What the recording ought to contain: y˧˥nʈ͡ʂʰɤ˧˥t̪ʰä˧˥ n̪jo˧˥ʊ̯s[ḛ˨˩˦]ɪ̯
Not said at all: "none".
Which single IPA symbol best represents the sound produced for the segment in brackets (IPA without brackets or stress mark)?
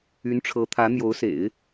ḛ˨˩˦